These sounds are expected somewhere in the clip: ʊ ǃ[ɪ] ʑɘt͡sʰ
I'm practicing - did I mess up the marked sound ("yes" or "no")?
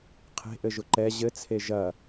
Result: yes